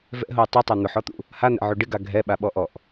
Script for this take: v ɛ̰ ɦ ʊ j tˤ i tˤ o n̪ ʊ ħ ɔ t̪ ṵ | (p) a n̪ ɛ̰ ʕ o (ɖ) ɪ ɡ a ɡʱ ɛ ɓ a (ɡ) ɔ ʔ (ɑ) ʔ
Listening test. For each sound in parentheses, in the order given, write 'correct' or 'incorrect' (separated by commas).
incorrect, correct, incorrect, incorrect